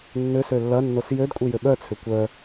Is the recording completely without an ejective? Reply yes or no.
no